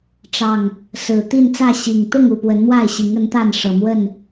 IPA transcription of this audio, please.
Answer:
ʈ͡ʂ ɑ˨˩ ŋ | s ɹ̩˨˩ t̪ i˥˨ n t͡s ä˥˨ ɕ i˨˩ ŋ t̪ ʊ˥˨ ŋ u˥˨ p w ə˨˦ n m w a˥˨ ɪ̯ ɕ i˨˦ ŋ ə˨˦ n t̪ a˥˨ n ʂ ɤ˨˩ m w ə˥˨ n

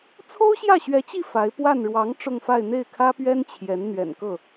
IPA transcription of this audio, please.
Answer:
t͡sʰ o˥ ʊ̯ ɕ j ä˥˩ ɕ ɥ ɛ˧˥ t͡ɕ i˥˩ f a˧˥ ɪ̯ p w a˥˩ n ɻ w ɑ˧˥ ŋ ʈ͡ʂ ʊ˥˧ ŋ f a˥˧ ɪ̯ n̪ e˥˩ ɪ̯ kʰ ä˥ p ɥ ɛ˥ n t͡ɕʰ j ɛ˧˥ n n̪ ɥ ɛ̰˨˩ n k ɤ˥˩

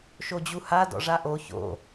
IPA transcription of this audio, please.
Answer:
ʃ o d͡ʑ u h a d ɔ̰ ʐ a ʔ o ç o̰

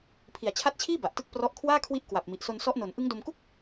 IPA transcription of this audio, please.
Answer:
pʰ i˨˩ a̯ t͡ɕʰ a˦˥ t̚ t͡ɕʰ iː˥˩ b a˨˩ ʔ t ɯ˥˩ k̚ p r ɔ˦˥ ʔ kʰ w aː˥˩ kʰ w i˦˥ ʔ k w a˨˩ p̚ m i˨˩ ʔ s o˧ n s ɔ˦˥ ʔ n o˨˩ n ʔ ɯ˦˥ ŋ d o˧ m k u˥˩ k̚

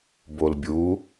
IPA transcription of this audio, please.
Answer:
b o l bʲ u

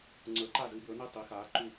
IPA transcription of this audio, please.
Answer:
ŋ͡ǀ ə˞˨˥ ǃ a˥˩ z ɨ˨˥ b ə˞˨˥ n i˥˩ tˤ i˨˥ x aː˨˥ ǃ u˥˩

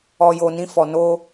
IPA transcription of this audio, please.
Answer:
ɔ˨ j o˨ n ĩ˧ f ɔ˨ n o˧

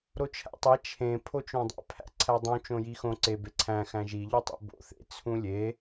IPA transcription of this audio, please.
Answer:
ɾ o t͡ʃʰ æ̰ tˤ æ t͡ʃʰ ẽ pʰ o t͡ʃ õ dˤ æ̰ pʰ æ̰ ǀʰ æ dˤ ũ t͡ʃ õ j i x õ ǀ e b e ǀʰ æ̃ x æ̃ ʒ i ʎ o tˤ ḭ b o̰ θ ḛ t͡sʰ ũ lʲ e

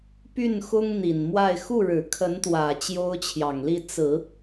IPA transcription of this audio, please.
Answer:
p y˥˩ n x ʊ˥ ŋ n̪ i˨˩ n m w a˥˧ ɪ̯ x u˥˩ ɻ ɻ̩˨˩ kʰ ə˧˥ n t̪ w ä˨˩ t͡ɕ j o˥ ʊ̯ t͡ɕʰ j ɑ˨˩ ŋ l i˥˩ t͡s ɹ̩˨˩˦

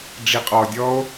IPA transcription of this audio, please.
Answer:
ɖ͡ʐ i qʼ ɔ dʲ ɔ o̯

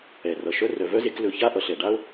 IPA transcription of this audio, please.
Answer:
ɛ˩ r ʌ˩ ʃ œ˦ r œ˨ v œ˥ z e˦ k l ɵ˨ ç a˥ ʔ ʌ˩ ɬ ɛ˩ ɖ a˥ o̯

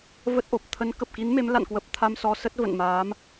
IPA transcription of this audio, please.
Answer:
v ə˦˥ t̚ ʔ o˨˩ p̚ t̪ʰ ə˨˦ n k ə˨˩ p̚ k i˨˦ n m e˨˦ m l a̰˧˨ n k w ə˨˩ p̚ t̪ʰ a˧ m s ɔ˧ s ə˦˥ t̚ v ə̰˧˨ n m aː˨˦ m

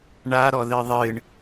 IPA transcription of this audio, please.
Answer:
ɳ a ɾ ɔ ð ɨ ðˤ ɨ ɳ

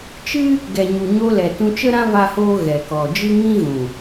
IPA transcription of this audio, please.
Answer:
t͡ʃ ɨ˦ | ɡ ɛ˨ ɲ u˨ ɲ o˧ l ɛ˨ t ũ˧ t͡ʃ ə˦ ɾ ã˦ v a˦ h oː˦ ɣ ɛ˨ k ɔ˨ d͡ʒ ɨ˦ ŋ ĩ˦ ɣ ũ˨

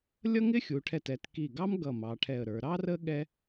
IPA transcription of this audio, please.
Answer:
lʲ ʌ˥ ŋ ɪ˥ xʲ u˩˧ ʈʰ ɛ˧˩ t ɛ˩˧ t k i˧˩ ɡ ɑ˥ m ɡ ʌ˧˩ m ɑ˩˧ ʈʰ ɛ˧˩ ə̯ ɾ ə˞˩˧ ɾ ɑ˥ r ə˥ ɠ ɛ˥

